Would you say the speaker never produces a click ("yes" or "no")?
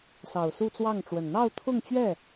yes